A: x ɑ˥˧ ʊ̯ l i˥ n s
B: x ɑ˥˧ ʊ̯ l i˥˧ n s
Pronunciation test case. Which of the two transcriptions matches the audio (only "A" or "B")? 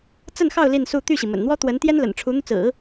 B